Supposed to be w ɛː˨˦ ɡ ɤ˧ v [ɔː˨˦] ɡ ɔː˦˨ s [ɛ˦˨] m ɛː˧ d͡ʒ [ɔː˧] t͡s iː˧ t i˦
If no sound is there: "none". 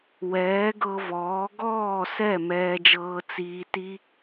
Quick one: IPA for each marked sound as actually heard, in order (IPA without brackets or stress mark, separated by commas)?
ɔː˨˦, ɛ˦˨, ɤː˧